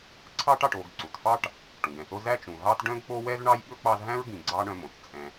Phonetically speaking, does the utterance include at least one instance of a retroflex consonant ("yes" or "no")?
yes